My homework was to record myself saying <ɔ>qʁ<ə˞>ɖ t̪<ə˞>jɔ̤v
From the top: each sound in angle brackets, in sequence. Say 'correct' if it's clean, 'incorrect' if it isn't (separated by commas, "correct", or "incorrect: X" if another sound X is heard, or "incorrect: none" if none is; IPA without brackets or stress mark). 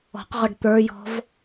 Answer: incorrect: ɔ̤, incorrect: ʌ, correct